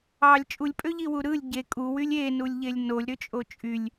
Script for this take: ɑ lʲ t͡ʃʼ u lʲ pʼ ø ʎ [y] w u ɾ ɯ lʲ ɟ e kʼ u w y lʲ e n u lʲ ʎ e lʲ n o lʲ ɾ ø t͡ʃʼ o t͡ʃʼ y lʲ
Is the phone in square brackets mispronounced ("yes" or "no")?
yes